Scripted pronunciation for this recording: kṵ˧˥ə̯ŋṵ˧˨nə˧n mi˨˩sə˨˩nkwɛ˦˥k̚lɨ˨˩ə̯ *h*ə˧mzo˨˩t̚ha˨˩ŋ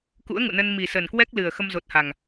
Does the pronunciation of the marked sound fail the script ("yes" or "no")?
yes